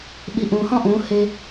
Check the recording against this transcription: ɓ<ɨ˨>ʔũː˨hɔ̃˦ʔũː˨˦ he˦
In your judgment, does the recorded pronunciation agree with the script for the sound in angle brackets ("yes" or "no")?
no